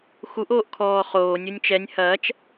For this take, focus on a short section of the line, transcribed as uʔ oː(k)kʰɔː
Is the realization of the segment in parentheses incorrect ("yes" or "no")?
yes